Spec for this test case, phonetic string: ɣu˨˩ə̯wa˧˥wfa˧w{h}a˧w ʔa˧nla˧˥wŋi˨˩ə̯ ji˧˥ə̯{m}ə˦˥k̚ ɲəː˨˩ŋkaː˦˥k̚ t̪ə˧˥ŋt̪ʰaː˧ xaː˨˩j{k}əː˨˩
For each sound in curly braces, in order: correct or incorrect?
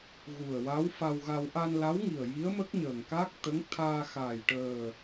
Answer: incorrect: ɣ, correct, incorrect: ʈ

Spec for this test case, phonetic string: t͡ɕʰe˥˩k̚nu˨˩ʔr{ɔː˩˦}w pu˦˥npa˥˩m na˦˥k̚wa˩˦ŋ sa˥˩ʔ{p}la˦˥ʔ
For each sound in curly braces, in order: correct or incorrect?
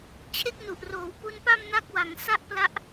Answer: incorrect: oː˩˦, correct

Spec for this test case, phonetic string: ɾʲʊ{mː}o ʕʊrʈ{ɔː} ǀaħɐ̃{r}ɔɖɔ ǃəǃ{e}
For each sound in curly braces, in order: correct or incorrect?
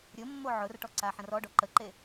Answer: correct, incorrect: ɔ, correct, correct

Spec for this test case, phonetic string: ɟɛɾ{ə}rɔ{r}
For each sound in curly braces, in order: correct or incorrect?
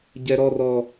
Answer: incorrect: ɔ, incorrect: none

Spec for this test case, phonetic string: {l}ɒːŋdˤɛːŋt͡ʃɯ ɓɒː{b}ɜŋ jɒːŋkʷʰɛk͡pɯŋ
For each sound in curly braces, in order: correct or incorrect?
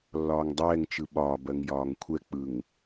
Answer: incorrect: lː, correct

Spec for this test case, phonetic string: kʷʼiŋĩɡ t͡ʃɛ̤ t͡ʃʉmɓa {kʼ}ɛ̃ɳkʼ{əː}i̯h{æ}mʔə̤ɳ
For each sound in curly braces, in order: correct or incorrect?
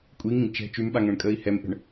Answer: incorrect: ŋ, correct, incorrect: ɛ

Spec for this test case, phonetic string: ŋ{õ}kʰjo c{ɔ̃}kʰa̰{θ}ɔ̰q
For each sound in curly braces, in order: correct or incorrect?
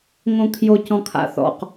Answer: correct, correct, correct

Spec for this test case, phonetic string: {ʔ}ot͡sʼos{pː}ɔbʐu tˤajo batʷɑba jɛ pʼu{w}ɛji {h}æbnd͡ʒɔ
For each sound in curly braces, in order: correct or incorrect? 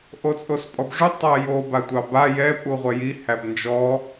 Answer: correct, incorrect: pʼ, incorrect: ʁʷ, correct

